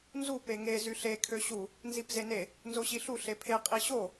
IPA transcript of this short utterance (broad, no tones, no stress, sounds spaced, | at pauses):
n z u p e ŋ e z y ɬ e kʰ ø ɕ u | n z i p z e n e | n z o ɕ i ɬ u ɬ e pʰ e qʼ i ɕ o